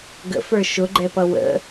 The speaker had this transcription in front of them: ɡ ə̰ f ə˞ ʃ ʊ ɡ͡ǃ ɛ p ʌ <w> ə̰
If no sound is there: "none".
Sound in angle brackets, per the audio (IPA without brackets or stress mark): w